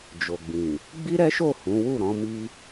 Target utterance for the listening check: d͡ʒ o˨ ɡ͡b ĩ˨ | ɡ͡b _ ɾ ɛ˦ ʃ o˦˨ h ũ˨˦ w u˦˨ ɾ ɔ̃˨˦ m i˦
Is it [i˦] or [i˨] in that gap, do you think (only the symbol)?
i˦